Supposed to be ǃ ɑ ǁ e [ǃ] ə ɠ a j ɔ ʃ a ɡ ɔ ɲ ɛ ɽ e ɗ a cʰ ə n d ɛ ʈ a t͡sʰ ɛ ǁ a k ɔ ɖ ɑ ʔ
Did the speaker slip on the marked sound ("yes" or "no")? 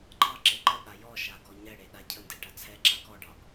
no